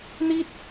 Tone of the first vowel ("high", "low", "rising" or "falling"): high